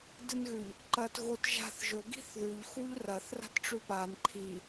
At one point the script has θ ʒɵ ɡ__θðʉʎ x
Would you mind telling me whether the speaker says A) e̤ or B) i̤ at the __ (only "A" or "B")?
B